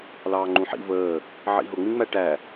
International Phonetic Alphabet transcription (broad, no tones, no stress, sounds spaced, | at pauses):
l ɑː ŋ͡ǃ ũ ħ ḭ v əː | ʕ ḭ ɦ ʊ ŋ͡m ĩ ŋ͡m æ ʈ æ